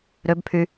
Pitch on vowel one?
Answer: rising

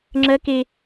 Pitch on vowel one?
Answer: high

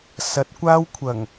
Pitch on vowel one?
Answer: rising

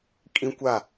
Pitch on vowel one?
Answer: high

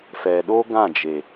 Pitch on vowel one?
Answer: low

